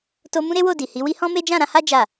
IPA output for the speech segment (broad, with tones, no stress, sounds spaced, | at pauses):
t o˧ m ũ˦ ɾ e˦ w o˦˨ d i˨ h i˨˦ w i˦ h ɔ̃˦ m e˦ d͡ʒ ã˦˨ ɾ ã˧ h a˦ d͡ʒ a˦˨